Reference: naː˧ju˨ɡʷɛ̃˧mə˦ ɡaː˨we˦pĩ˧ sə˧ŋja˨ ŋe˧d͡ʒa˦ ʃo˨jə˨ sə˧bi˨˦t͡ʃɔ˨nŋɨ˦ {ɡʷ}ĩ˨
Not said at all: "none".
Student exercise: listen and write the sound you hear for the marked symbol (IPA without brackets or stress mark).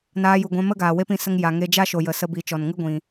ɡʷ